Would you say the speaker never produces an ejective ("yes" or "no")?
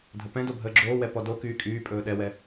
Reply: no